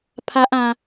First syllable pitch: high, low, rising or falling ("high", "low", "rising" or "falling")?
high